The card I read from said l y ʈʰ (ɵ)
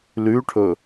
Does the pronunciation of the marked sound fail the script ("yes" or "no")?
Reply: no